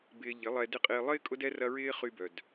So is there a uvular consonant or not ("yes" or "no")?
yes